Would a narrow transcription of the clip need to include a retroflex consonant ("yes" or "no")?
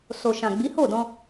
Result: no